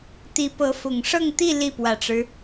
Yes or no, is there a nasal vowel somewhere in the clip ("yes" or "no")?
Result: no